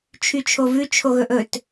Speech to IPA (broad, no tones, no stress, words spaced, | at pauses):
t͡ʃʰyt͡ʃʰovʉ t͡ʃʰoɣɵʔɵt